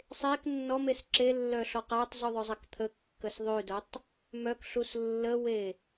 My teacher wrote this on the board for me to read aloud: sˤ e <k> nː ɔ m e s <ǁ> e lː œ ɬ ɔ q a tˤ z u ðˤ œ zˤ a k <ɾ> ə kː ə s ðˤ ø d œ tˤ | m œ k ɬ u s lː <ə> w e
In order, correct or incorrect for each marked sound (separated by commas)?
correct, correct, incorrect, correct